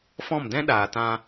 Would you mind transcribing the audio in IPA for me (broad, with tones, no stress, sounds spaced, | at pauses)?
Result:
f ɔ̃˦˨ m d ɛ̃˦ ɗ aː˨ t ã˧